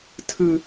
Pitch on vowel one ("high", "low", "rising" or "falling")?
high